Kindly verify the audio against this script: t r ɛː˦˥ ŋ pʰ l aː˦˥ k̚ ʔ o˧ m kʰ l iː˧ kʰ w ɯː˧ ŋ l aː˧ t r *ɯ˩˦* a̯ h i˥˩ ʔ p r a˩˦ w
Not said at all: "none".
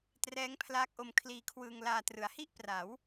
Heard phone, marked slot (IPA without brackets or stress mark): ɯ˩˦